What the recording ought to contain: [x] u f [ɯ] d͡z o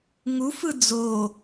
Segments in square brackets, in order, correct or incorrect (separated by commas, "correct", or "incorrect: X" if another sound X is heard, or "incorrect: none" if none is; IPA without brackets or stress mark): incorrect: ŋ, correct